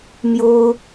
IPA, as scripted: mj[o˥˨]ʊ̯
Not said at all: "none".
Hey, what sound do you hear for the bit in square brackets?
o˦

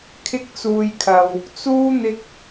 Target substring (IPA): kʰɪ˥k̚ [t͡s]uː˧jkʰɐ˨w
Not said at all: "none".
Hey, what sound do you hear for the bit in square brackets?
t͡s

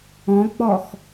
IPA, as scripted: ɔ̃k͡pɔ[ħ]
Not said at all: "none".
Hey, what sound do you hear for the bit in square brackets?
x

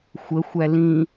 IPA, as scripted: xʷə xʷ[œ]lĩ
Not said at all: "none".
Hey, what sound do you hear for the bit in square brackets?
æ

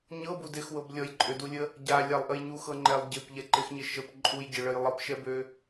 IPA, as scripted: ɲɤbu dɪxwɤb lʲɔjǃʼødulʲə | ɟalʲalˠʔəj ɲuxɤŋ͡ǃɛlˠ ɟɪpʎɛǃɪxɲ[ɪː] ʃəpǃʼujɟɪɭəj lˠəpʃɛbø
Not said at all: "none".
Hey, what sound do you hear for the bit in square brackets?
ɪ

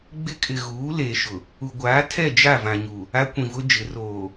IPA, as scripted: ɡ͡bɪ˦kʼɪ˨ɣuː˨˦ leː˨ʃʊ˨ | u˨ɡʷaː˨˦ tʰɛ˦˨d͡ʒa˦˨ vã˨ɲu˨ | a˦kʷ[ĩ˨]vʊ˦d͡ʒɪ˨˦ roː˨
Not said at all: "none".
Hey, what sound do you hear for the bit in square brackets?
ĩ˨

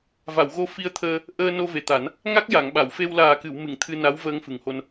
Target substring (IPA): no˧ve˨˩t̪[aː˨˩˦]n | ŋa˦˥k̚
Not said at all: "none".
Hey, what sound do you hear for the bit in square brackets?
a˨˩˦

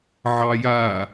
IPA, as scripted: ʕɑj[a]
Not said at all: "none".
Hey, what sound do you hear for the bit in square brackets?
a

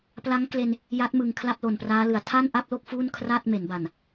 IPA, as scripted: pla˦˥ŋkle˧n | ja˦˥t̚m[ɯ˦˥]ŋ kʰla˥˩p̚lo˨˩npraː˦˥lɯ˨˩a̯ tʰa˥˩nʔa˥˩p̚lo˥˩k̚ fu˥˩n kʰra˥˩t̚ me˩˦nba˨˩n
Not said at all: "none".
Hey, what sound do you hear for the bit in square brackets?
ɯ˨˩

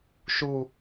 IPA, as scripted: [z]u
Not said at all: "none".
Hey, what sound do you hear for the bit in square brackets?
ʃ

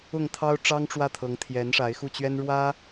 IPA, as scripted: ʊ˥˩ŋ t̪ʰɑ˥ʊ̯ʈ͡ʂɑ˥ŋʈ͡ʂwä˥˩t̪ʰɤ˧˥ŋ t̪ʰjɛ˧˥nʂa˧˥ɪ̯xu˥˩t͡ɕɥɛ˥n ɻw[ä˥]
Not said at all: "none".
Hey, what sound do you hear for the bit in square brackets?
ä˥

